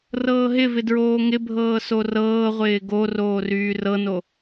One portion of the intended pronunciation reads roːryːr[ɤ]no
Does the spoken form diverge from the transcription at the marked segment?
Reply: no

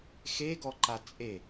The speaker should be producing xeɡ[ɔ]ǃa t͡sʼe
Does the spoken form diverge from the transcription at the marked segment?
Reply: no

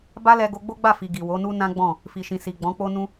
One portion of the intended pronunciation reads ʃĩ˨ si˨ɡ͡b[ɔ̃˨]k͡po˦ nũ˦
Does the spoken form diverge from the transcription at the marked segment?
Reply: yes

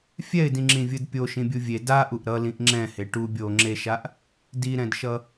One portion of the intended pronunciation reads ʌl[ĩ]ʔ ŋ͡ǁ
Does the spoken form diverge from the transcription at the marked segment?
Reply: no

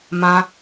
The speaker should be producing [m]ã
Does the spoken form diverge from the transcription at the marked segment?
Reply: no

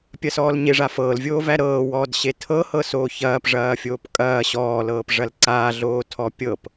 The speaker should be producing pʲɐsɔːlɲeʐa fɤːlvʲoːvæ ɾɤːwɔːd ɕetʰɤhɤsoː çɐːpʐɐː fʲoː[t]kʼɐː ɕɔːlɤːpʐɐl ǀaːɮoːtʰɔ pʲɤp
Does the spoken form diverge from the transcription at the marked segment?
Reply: yes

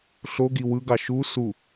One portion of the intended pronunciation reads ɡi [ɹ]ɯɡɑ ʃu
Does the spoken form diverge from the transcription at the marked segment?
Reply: yes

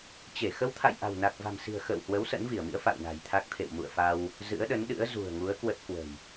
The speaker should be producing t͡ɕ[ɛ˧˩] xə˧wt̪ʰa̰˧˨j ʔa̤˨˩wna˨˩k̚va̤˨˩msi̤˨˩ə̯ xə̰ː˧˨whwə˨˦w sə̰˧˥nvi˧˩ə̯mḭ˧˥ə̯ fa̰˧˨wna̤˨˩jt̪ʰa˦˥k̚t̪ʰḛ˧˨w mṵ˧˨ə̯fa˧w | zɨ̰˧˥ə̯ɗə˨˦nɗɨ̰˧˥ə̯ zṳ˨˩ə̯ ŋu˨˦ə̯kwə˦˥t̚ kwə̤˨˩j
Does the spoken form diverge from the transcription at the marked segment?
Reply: yes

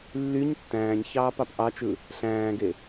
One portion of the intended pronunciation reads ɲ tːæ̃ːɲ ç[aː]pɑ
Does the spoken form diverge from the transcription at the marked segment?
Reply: yes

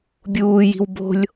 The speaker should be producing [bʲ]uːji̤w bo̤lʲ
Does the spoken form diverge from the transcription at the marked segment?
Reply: no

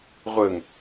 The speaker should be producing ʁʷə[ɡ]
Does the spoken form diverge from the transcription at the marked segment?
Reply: yes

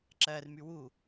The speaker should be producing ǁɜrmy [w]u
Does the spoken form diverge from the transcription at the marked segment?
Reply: no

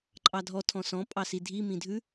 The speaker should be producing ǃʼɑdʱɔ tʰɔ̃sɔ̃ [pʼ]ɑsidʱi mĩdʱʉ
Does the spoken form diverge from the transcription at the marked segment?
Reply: no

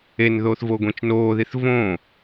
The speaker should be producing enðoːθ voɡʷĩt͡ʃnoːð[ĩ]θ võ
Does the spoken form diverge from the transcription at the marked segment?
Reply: yes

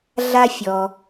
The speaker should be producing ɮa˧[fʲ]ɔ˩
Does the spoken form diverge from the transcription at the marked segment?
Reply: no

